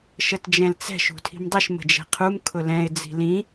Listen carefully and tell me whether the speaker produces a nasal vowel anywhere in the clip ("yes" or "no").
yes